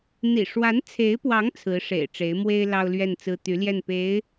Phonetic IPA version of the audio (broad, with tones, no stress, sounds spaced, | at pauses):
n̪ ḭ˨˩ ʂ w a˧˥ n t͡sʰ e˧˥ ɪ̯ p w ɑ˧˥ ŋ t͡sʰ ɹ̩˧˥ ʂ ḛ˨˩ ɪ̯ ʈ͡ʂ e˧˥ ɪ̯ m w e˥ ɪ̯ l ɑ˥ ʊ̯ l ɥ ɛ˥˩ n t͡s ɹ̩˥ t̪ y˧˥ l j ɛ˥˩ n p e˧˥ ɪ̯